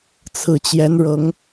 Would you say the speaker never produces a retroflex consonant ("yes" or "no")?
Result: no